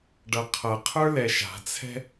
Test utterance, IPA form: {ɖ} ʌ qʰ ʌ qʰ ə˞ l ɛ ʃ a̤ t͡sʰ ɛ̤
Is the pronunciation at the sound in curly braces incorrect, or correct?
correct